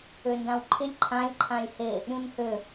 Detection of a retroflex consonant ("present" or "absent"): absent